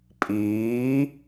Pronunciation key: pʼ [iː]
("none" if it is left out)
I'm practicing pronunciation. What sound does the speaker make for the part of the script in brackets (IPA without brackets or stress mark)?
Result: iː